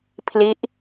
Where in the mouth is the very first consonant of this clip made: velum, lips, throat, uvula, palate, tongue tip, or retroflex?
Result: lips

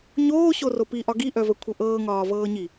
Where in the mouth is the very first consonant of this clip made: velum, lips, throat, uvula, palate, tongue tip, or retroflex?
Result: palate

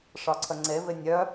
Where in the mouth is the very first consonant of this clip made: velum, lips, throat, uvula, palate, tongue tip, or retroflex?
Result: retroflex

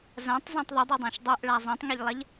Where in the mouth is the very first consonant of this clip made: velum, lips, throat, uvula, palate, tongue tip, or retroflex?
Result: tongue tip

